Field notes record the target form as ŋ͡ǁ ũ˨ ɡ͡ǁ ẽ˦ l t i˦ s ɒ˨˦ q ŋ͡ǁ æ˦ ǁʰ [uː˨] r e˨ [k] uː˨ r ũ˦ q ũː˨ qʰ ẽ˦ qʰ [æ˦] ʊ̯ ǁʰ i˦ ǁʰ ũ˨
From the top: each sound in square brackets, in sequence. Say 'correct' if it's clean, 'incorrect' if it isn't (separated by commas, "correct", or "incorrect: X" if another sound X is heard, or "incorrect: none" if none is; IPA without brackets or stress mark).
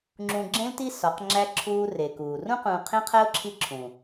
incorrect: uː˦, correct, correct